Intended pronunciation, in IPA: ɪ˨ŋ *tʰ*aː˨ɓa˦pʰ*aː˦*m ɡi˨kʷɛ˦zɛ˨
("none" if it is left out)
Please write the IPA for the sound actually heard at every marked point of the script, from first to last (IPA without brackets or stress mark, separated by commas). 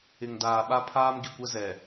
d, aː˦